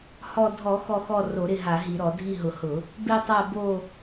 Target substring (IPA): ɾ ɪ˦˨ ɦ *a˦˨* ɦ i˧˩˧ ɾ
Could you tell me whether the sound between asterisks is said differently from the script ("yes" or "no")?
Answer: yes